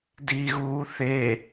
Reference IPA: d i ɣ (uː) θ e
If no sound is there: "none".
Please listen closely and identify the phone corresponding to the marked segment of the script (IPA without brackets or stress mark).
uː